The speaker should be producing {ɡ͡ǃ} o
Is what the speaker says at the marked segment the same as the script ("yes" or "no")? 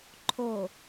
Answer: no